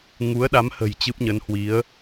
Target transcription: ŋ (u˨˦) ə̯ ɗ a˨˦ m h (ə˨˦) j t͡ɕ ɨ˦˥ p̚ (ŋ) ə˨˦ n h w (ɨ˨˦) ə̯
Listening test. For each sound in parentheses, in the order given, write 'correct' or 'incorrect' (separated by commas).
correct, incorrect, incorrect, incorrect